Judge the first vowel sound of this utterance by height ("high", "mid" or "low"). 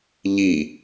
high